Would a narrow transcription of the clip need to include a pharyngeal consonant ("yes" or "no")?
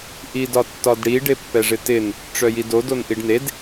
no